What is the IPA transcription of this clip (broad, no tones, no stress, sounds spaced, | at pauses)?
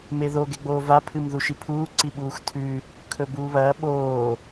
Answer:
m e ð o ɡ e ɡ͡b oː v a pʰ ɨ m ð u ʃ i pʰ uː ǀ i ɓ uː x tʰ ʉ | kʰ ɵ b uː β ɐː ɓ oː